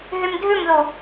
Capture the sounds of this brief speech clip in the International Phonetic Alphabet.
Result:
ɦymdʱʉmðu

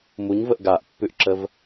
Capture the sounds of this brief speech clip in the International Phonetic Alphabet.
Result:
muɲvəʔ ɡaʔpːʉʔǁəv

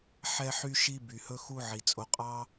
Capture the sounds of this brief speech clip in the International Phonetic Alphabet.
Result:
ħɛ˦ħy˦ʃi˦ by˩hɵ˦xu˦ ʕi˩t͡sʼo˨qʼɑ˥

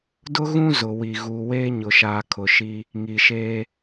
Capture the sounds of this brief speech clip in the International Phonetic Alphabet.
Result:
dʊ˦ɣũ˦ zʊ˨wi˨ ɣuː˨weː˦ɲʊ˨ʃaː˨ kʰʊ˨ʃi˦ | ŋi˨ʃeː˦

